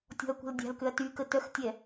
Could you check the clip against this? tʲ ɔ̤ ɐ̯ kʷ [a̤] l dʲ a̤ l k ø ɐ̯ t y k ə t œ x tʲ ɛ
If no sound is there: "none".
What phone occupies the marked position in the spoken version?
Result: ə̤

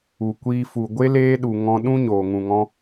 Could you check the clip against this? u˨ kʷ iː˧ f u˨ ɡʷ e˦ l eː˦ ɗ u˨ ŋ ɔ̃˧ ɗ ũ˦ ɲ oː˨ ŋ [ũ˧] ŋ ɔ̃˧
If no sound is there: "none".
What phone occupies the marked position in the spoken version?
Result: ũ˨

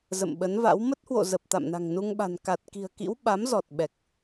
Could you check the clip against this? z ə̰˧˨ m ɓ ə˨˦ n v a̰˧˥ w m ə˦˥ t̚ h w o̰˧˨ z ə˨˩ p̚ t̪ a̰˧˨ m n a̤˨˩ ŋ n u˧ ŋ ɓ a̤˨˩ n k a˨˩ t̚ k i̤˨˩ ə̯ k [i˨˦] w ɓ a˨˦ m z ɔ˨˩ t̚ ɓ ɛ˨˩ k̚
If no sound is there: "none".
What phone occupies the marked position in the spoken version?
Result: ḭ˧˥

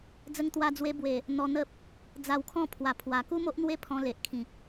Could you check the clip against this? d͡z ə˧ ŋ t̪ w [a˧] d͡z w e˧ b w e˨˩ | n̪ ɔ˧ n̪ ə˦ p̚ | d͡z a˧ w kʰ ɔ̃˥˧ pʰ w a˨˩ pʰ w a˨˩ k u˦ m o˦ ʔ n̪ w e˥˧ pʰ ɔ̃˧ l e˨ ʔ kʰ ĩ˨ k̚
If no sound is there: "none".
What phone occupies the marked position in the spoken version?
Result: a˧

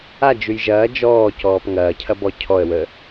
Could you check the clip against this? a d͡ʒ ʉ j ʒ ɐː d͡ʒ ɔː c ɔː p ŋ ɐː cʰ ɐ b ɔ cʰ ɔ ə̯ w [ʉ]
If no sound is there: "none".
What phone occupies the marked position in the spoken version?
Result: ə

